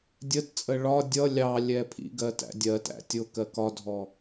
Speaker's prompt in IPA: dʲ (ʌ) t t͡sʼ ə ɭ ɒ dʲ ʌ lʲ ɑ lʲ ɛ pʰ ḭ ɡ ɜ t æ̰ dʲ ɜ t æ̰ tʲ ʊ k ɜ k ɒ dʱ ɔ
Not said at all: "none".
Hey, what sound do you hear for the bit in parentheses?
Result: ə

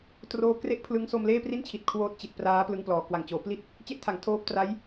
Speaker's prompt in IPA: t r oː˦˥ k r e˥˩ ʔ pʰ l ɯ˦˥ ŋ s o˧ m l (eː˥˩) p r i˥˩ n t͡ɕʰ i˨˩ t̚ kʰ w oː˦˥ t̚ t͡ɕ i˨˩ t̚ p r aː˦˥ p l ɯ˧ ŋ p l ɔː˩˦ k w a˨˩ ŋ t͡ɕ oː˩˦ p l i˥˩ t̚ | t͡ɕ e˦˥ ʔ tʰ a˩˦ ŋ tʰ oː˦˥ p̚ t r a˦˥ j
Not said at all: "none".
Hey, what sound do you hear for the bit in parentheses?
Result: eː˥˩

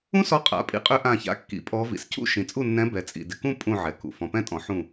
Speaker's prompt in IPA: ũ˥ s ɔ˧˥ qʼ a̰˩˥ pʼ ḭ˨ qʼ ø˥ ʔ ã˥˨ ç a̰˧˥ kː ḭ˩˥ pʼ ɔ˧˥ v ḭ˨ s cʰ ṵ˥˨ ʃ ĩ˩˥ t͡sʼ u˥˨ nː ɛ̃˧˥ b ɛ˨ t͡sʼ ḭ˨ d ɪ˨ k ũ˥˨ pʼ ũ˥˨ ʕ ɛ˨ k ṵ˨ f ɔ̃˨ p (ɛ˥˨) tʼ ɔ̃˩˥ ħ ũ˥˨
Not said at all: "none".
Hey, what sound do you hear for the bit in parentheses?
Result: ɛ̃˥˨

